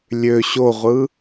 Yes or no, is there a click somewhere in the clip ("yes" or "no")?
no